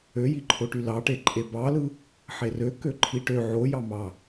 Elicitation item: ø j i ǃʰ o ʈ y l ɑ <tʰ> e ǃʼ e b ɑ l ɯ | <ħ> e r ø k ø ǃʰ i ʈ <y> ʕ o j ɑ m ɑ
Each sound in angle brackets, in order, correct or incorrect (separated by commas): incorrect, correct, incorrect